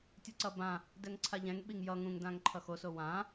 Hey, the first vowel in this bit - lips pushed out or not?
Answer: no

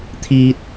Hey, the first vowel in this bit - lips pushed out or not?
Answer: no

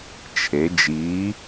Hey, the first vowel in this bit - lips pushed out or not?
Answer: no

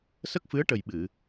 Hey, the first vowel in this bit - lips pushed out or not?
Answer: no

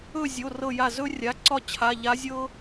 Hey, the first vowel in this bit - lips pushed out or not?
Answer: yes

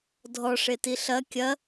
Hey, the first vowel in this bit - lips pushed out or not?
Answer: yes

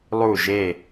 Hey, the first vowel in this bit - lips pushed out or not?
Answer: yes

